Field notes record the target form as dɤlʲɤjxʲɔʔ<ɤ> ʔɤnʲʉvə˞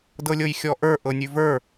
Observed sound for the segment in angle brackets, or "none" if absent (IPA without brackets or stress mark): ə˞